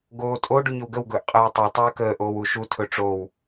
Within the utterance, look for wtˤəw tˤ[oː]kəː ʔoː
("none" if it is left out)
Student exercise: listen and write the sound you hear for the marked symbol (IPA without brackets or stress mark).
ɵː